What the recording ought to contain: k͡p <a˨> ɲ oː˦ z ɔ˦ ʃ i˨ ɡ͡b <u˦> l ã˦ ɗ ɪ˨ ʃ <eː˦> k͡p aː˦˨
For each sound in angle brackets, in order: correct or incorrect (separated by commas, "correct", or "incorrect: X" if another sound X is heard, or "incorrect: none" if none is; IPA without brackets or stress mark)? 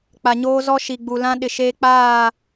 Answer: correct, incorrect: u˨, correct